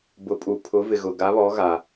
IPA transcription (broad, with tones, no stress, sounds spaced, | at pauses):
b ʊ˨ pʼ u˨ pʰ ʊ˨˦ v ɪ˨ ɣ ʊ˨ ɡ a˨˦ β ɔ˨˦ ɣ a˨